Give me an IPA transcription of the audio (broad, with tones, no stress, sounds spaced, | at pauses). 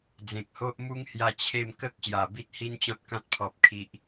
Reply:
d͡z ẽ˨ k̚ h o˦ ʔ m u˦ ŋ h j a˧ t͡ɕʰ e˥˧ m k ə˦ k̚ ɕ j a˨˩ b i˦ t̚ h i˦ n t͡ɕ ɔ̃˦ t̚ k ã˦ t̚ pʰ ɔ˨ p̚ kʰ i˨ ʔ